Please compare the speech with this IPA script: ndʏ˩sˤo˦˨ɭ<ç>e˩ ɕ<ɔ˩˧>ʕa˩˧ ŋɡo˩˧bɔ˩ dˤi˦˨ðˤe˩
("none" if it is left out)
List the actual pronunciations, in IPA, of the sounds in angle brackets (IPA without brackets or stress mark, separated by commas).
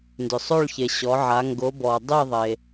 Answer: ç, ɔ˩˧